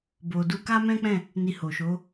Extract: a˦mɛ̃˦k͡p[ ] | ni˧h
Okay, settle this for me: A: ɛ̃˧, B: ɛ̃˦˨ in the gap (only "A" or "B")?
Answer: B